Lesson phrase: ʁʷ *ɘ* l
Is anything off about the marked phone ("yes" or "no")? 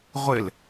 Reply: no